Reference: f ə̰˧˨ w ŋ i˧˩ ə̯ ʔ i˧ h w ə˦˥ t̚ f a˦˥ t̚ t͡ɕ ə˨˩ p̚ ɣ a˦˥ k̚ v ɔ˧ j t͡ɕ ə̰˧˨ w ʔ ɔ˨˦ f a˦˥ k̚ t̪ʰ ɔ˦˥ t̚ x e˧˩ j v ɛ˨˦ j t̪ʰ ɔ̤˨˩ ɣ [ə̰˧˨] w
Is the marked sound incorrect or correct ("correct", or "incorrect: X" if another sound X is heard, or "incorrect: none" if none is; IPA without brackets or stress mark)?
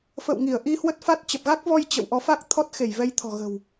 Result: incorrect: ə̤˨˩